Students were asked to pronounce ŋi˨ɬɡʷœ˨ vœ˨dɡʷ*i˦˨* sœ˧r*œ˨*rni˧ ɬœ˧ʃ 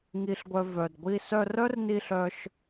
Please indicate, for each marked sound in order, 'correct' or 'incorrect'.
incorrect, incorrect

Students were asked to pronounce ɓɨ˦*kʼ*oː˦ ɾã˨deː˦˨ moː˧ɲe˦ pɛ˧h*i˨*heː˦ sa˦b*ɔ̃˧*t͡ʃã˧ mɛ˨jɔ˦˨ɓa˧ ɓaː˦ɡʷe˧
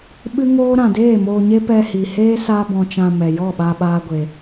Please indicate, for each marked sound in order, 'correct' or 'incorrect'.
incorrect, correct, correct

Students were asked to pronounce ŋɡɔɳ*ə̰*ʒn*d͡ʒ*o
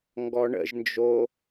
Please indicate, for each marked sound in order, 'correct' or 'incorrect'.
correct, correct

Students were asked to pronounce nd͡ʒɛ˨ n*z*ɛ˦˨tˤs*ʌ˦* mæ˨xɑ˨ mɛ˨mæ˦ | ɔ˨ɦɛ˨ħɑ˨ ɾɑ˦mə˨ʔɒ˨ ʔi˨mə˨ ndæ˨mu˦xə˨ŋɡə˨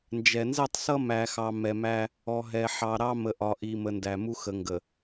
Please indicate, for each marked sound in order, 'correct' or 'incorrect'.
correct, correct

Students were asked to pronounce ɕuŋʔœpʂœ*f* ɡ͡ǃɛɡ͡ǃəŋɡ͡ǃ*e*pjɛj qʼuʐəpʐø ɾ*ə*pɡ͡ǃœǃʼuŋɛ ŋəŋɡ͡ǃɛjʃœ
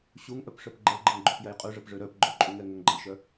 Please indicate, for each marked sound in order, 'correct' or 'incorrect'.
incorrect, incorrect, incorrect

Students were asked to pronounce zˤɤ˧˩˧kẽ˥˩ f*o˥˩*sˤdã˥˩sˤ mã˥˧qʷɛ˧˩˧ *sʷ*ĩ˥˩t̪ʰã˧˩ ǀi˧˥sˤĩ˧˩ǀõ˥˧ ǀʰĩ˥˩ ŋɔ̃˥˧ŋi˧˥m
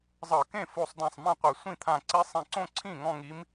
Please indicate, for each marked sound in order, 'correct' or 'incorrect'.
correct, correct

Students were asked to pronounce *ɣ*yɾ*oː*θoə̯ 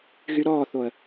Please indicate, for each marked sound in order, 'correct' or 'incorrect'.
correct, incorrect

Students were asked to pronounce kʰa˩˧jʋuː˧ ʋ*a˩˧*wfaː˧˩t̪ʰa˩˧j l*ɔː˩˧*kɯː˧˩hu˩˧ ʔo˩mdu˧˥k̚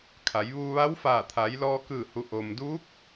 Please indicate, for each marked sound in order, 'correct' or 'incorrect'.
incorrect, incorrect

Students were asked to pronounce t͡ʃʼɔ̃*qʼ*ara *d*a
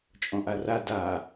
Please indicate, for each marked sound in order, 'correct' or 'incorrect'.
incorrect, correct

